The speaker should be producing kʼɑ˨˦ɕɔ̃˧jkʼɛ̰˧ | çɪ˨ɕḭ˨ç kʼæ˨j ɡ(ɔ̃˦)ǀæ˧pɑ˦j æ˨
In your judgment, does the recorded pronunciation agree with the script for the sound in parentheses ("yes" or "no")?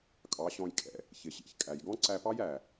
yes